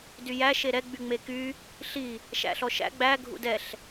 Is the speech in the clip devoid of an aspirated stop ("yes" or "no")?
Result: yes